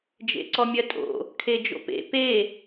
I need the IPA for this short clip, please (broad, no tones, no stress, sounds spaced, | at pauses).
d͡ʒ ḛ ǀ ɔ mʲ ɜ tʼ o̰ | kʰ e d͡ʒ o̰ p ḛ p e